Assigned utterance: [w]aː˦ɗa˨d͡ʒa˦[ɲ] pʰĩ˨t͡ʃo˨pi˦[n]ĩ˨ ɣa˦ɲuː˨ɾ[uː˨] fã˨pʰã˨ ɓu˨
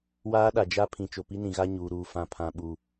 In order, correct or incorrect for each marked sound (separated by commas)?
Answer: correct, incorrect, correct, correct